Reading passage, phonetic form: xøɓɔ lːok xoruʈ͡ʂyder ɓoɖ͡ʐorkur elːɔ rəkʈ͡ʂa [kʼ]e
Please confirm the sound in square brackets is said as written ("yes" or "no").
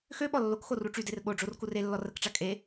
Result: yes